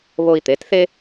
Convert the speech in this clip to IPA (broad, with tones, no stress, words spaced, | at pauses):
βo˧i̯t̪e˩˧tθe˥